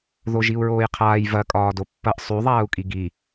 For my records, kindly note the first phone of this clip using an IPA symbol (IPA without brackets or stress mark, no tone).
ð